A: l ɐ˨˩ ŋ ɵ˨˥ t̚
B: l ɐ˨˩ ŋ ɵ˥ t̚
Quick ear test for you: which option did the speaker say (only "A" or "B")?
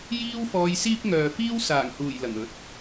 A